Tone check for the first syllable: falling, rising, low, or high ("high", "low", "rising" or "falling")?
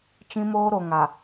high